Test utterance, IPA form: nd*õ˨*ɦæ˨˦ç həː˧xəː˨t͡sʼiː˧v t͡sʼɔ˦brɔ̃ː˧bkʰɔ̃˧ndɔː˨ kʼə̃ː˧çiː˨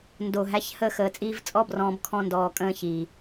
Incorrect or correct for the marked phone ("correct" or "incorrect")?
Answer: incorrect